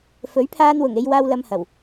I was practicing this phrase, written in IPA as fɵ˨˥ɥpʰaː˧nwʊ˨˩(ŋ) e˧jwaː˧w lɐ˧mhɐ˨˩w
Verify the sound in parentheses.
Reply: correct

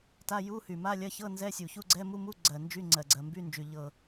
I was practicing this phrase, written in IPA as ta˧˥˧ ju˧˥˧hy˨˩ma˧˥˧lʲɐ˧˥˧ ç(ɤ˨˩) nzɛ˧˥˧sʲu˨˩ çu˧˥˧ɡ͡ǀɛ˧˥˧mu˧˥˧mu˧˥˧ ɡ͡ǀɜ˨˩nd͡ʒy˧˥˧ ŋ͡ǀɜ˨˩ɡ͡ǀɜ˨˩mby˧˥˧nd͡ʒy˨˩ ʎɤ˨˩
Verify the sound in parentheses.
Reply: incorrect: ɤ˧˥˧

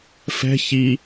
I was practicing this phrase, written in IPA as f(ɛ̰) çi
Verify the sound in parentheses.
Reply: incorrect: ɛ̤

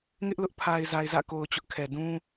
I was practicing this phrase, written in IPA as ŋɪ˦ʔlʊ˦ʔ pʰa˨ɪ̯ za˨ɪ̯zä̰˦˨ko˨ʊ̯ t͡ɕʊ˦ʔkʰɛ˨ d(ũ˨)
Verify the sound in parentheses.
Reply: incorrect: ũ˦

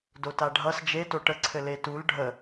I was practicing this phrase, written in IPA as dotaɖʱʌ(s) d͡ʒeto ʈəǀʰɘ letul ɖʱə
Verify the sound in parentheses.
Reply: correct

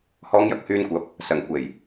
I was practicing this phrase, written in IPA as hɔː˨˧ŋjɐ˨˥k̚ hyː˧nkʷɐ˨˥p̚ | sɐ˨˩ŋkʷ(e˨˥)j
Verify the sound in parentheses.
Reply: incorrect: e˨˩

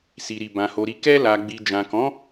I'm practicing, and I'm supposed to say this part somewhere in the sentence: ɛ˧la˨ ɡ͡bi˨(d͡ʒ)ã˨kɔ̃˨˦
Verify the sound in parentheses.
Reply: correct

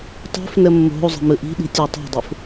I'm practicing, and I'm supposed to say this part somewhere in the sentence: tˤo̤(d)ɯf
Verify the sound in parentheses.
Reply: incorrect: dˤ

